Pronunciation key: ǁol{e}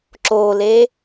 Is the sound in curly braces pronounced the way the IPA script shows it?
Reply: yes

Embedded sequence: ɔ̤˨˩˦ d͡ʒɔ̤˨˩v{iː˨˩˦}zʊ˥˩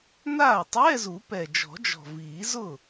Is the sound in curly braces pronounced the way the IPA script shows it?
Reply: yes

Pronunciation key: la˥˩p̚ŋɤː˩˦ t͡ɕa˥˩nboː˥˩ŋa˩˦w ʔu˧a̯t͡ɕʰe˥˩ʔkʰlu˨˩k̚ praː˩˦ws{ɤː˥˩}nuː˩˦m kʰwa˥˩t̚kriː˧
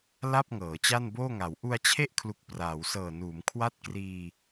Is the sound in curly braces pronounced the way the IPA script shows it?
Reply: no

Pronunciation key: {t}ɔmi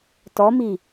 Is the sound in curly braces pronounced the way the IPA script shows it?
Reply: yes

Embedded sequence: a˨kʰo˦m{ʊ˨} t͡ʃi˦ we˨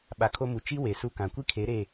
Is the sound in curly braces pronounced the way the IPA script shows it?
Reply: no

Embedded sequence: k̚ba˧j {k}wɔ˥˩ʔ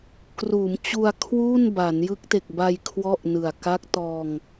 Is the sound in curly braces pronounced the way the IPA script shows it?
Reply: no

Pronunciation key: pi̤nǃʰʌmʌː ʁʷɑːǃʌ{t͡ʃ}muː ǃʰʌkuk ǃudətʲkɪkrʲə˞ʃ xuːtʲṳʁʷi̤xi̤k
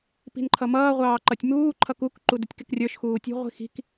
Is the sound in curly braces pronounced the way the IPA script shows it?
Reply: no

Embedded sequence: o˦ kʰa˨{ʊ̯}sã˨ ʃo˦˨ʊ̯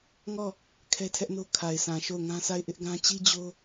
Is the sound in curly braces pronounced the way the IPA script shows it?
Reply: no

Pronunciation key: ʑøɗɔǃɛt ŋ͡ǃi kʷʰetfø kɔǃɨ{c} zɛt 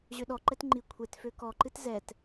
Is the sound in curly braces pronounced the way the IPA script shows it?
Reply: no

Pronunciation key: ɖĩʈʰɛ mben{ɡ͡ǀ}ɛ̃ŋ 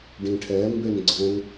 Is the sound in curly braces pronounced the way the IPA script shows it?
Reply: yes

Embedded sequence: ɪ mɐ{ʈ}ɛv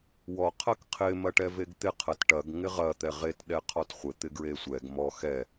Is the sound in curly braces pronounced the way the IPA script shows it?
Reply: yes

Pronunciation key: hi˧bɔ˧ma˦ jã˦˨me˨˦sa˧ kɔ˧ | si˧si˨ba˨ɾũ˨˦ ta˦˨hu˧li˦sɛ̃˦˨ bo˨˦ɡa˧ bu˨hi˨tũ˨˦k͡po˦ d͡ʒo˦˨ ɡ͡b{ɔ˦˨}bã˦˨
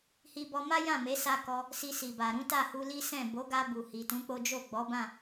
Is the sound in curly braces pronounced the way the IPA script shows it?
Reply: no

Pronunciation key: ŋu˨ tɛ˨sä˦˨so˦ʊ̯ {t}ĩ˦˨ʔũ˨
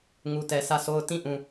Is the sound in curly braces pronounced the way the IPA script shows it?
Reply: yes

